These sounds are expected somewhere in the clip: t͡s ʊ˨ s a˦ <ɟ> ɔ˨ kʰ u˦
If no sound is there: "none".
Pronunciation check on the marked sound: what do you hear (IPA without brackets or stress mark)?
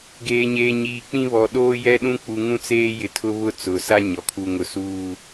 ɲ